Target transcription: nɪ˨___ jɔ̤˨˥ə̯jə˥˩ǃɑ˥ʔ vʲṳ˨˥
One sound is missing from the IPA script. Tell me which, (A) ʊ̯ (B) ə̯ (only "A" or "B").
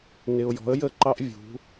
A